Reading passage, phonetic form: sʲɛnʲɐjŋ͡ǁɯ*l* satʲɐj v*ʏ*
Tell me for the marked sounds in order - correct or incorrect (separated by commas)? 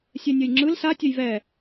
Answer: correct, incorrect